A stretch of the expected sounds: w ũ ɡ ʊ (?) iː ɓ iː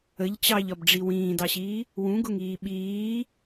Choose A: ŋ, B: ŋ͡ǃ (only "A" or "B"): A